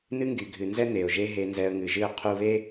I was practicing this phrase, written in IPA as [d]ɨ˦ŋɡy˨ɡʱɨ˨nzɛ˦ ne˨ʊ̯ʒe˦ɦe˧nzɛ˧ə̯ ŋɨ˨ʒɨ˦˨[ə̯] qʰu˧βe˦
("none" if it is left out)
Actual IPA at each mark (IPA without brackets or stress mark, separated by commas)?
n, ə̯